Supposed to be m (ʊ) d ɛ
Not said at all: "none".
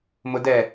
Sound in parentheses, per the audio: ʊ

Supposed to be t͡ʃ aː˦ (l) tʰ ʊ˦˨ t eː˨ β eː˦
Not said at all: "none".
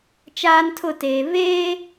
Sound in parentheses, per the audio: n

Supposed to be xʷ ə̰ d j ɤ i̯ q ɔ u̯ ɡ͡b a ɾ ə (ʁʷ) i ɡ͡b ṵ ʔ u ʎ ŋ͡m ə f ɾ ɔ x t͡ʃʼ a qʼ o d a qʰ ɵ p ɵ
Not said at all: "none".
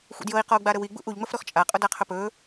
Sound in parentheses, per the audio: w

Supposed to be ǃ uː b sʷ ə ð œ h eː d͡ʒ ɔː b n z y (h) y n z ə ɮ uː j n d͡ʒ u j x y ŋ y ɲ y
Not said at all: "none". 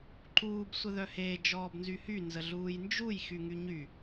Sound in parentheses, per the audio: h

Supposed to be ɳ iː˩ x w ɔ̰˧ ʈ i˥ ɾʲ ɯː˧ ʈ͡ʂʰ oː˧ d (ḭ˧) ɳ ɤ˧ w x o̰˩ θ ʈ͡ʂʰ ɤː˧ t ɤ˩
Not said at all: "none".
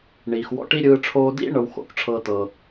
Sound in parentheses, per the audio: ḭ˥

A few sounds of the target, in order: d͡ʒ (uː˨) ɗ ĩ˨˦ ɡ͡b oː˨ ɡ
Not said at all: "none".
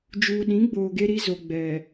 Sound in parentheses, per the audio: uː˨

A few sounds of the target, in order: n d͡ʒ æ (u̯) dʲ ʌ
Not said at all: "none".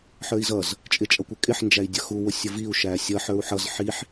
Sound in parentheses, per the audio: i̯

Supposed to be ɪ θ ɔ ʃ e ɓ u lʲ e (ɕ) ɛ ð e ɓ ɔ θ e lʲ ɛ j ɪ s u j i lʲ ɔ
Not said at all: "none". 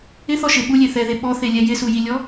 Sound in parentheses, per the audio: θ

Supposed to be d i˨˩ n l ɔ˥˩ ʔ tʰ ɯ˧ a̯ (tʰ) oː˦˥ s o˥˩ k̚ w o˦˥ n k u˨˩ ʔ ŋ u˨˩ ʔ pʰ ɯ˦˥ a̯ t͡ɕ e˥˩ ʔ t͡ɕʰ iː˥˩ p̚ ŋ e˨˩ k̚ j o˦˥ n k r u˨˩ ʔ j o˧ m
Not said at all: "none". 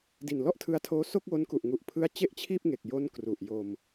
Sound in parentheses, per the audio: tʰ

